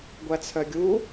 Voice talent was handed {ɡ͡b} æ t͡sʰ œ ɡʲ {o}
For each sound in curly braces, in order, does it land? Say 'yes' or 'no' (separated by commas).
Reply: no, no